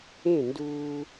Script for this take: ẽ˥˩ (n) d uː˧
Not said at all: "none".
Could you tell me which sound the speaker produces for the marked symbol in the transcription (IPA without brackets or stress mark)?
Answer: n